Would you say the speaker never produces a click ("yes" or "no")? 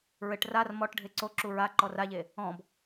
no